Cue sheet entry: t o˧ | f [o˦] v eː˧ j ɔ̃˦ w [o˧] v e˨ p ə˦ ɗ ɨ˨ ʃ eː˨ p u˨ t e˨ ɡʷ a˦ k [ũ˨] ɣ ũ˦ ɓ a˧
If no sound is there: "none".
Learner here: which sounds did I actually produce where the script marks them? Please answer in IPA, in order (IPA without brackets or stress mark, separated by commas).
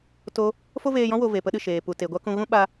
o˦, o˧, ũ˧